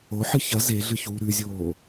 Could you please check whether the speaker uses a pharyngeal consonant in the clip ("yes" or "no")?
yes